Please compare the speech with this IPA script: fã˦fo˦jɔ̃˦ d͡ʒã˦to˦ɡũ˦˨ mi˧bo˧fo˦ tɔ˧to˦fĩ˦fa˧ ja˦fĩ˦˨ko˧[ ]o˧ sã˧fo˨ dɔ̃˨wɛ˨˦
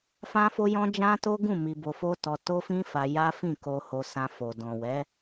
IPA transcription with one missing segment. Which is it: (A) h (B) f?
A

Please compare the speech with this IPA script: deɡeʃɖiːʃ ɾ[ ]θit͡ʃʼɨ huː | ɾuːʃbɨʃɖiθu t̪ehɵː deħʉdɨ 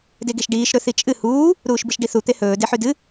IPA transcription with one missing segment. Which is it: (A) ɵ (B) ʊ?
A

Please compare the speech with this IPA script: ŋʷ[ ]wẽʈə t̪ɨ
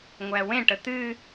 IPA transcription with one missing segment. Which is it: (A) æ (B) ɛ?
A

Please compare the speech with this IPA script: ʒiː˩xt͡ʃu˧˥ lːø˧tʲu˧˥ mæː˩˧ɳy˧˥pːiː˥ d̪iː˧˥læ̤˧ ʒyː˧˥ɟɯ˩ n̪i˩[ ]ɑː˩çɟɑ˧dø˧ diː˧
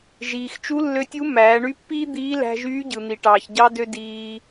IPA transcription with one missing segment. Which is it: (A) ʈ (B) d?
A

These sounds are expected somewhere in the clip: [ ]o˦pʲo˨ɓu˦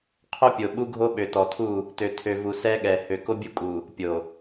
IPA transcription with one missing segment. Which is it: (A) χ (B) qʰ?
B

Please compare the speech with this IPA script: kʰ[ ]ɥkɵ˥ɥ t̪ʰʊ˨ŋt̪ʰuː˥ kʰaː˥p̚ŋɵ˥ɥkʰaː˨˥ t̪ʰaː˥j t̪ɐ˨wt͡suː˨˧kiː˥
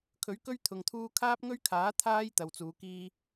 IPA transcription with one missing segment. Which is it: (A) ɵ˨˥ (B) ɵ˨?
A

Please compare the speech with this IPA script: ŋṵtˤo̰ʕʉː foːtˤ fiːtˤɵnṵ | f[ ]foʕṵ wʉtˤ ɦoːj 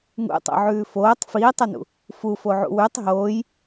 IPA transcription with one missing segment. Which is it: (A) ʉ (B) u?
B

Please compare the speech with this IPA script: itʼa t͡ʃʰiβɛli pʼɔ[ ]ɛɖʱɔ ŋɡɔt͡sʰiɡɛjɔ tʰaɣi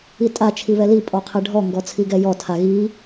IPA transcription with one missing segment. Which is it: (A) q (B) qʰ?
B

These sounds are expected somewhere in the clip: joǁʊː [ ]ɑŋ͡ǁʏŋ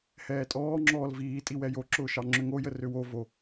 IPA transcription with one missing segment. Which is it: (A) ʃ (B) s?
A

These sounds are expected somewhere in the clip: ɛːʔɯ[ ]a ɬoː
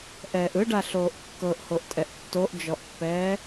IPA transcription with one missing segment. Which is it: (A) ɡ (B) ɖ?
B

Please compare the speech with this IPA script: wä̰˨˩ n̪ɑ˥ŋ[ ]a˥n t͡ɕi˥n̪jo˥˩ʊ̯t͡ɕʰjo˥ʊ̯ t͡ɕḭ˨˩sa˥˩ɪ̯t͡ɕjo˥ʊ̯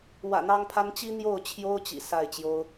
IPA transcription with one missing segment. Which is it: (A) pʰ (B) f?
A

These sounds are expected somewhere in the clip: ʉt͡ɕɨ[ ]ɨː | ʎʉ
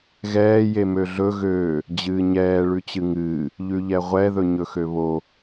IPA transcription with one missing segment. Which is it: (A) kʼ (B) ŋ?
B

